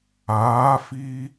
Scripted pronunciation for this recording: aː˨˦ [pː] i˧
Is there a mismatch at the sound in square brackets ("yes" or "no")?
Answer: yes